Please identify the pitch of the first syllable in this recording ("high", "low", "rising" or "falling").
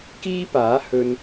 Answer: high